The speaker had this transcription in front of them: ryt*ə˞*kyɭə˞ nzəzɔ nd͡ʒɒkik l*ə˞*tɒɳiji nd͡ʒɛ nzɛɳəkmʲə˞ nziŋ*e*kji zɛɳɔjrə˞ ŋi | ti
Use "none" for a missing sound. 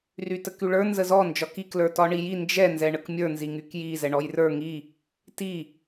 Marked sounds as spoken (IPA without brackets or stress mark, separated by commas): ə, ə˞, y